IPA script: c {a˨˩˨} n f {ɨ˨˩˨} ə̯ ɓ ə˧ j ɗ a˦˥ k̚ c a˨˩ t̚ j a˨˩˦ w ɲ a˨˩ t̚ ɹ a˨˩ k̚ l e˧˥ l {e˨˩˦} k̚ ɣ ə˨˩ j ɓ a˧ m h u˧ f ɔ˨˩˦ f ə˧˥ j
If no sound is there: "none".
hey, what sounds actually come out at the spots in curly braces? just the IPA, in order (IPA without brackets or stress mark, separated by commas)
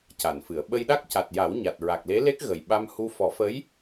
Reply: a˨˩˨, ɨ˨˩˨, e˦˥